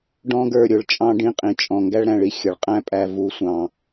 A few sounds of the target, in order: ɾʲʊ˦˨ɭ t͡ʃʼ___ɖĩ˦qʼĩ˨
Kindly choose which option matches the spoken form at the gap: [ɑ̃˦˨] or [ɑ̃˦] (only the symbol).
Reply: ɑ̃˦